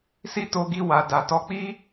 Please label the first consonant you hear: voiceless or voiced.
voiceless